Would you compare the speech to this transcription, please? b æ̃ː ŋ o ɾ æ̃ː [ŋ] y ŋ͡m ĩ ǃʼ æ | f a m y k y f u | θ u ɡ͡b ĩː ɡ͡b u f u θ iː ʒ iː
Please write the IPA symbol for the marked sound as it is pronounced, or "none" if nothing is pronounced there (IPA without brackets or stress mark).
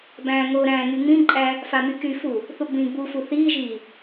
ŋ